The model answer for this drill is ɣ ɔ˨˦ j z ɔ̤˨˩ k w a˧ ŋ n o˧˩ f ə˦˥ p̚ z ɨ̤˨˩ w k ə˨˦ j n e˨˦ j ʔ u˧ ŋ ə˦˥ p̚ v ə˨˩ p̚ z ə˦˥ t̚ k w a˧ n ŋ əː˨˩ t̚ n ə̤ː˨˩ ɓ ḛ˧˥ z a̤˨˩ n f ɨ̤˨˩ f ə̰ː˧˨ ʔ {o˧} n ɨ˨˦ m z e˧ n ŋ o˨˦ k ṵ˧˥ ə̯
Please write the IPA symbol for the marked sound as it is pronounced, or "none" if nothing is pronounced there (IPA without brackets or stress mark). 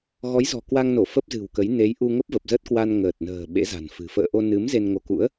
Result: o˧